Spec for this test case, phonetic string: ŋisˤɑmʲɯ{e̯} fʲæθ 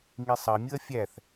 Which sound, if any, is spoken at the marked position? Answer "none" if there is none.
ɐ̯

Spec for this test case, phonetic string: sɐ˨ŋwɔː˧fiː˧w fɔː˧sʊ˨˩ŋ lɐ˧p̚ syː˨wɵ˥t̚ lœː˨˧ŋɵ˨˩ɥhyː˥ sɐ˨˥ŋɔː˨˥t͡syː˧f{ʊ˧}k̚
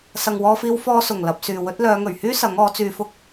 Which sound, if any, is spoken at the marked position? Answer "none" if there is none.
ʊ˥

